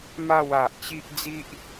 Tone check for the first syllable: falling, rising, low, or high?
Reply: falling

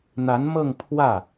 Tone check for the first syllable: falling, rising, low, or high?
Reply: rising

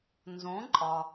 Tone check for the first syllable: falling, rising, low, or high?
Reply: rising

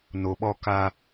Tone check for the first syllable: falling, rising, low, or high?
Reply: low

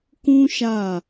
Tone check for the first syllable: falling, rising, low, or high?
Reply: high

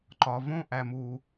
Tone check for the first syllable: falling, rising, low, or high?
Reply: low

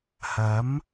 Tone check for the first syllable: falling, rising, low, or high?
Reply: rising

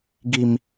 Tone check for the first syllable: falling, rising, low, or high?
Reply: low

